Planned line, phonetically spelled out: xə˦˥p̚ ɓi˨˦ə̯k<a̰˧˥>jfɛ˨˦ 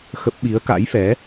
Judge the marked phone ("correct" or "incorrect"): correct